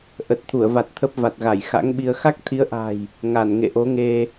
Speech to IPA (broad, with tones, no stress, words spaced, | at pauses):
ʔə˨˩t̚t̪ʰu˧˩ə̯va˨˩t̚ t̪ʰə˦˥p̚va˨˩t̚ɣa˧˩j xa̰˧˥ŋɓi˧ə̯ xa˦˥k̚t̪ʰi˨˦ə̯ʔa̤˨˩j | ŋa˧˩n ŋḛ˧˨ʔo˨˦ŋe˧